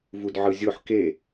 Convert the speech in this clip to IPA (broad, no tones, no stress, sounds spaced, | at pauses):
v u d ʕ ɯ zʲ o ħ k e